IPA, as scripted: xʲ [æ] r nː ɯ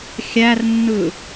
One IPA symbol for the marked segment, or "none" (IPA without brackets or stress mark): æ